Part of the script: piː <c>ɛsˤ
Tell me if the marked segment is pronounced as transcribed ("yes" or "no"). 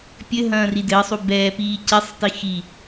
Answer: yes